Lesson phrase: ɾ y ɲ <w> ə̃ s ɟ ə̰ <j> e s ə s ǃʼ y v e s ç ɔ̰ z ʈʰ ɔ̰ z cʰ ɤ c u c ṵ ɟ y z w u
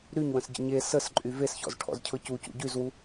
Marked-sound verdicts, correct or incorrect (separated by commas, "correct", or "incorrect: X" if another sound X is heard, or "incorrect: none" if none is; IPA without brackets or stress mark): correct, incorrect: ɲ